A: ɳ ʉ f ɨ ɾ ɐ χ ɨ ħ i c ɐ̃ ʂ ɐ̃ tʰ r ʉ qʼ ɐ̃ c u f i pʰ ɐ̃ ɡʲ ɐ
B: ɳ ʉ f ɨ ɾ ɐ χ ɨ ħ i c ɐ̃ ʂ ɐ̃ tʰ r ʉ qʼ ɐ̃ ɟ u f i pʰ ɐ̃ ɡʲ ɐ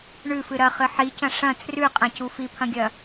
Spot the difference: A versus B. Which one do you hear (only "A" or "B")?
A